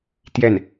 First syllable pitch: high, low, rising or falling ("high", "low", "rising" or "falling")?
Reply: falling